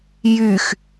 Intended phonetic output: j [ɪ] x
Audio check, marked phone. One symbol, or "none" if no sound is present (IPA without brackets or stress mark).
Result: y